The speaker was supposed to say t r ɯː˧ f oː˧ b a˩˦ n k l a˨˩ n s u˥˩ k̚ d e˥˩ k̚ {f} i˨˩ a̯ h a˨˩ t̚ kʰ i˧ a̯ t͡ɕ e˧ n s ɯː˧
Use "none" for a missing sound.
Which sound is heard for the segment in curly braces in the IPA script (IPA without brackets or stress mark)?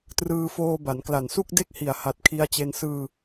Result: h